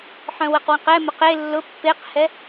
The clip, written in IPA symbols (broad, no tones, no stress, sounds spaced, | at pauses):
ħ œ̃ w ə q w ə̃ q ɛ m ʊ q e lː ʊ pː e q h ɛ